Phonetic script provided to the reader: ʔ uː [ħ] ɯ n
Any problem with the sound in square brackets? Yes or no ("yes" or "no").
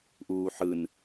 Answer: no